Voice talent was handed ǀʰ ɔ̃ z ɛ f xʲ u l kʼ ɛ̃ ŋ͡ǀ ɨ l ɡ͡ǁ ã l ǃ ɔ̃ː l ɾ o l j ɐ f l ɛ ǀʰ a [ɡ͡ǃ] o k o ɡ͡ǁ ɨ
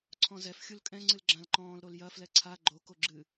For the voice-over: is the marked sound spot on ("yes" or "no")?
yes